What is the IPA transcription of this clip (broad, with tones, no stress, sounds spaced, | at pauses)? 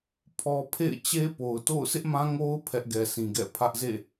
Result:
pʰ ɔ˦ pʰ ḛ˦˨ ɪ̯ t͡ɕ e˦ p o˨ ʊ̯ t o̰˦˨ ʊ̯ s ɪ˦ ʔ m ã˦ ŋ o˦ ʊ̯ pʰ ɛ˦ ʔ ɡ ɛ˨ sʰ ĩ˨ ɡ ɛ̰˦˨ pʰ ä˦ ʔ z ḛ˦˨